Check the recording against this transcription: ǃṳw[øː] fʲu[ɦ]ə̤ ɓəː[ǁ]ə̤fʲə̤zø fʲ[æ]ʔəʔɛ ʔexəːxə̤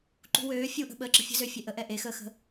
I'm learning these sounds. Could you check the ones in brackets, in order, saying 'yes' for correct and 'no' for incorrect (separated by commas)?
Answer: yes, no, yes, no